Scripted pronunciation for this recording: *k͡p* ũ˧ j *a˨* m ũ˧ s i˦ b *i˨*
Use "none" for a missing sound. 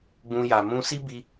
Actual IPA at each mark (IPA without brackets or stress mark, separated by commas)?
ɡ͡b, a˨, i˧